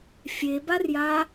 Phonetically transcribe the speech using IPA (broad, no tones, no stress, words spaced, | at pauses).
fʲebarja